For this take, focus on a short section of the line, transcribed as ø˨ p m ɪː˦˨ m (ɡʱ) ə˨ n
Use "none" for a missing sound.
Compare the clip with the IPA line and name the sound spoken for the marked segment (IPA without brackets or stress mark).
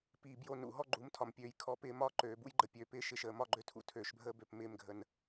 ɡʱ